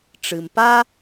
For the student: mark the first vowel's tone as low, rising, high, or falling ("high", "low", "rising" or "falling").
low